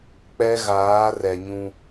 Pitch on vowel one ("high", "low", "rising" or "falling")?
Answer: high